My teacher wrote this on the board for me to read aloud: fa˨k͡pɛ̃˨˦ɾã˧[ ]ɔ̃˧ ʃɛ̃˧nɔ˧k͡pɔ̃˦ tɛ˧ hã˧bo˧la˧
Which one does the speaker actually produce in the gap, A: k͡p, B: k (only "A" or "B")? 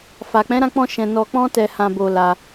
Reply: A